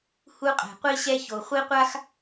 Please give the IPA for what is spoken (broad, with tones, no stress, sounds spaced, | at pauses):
h u˦ qʼ ɛ̤˨ qʷ i˦ ɕ ɛ˦ ç o˨ χʷ i˦ qʷ a˦ x